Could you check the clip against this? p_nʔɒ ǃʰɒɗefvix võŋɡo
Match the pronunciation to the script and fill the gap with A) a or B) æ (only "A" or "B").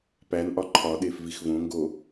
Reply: B